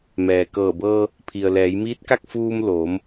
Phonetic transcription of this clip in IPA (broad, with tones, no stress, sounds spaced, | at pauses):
m ɛː˩ k ɤː˧˩ b ɤː˧ | pʰ i˩ ə̯ l ɛː˩˧ j m iː˧˥ t̚ k a˥˨ k̚ f uː˧ m l oː˩˧ m